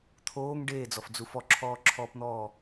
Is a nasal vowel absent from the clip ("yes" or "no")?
yes